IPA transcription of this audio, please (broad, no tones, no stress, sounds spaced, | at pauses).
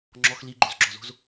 ŋ͡ǁ ɔ x l i ɡ͡ǃ o z ɡ͡ǁ ɔ z o̤ z